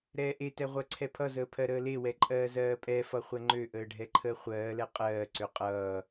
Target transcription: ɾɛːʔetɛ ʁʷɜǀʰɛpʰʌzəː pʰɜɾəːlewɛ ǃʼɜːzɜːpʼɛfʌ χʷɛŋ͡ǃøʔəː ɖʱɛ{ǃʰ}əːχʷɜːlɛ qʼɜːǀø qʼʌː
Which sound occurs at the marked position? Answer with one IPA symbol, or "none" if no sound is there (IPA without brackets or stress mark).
ǃʰ